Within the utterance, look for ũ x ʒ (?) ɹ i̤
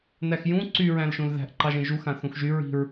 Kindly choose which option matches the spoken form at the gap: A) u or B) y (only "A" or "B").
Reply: B